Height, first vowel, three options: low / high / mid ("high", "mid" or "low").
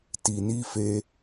high